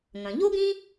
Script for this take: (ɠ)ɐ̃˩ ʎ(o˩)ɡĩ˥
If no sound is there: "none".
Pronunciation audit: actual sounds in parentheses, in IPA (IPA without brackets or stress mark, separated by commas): ŋ, o˥